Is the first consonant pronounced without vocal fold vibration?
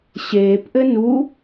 yes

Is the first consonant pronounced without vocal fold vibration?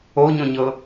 no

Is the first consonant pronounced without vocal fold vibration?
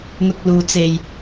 no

